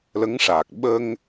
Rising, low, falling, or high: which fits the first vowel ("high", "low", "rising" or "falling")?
rising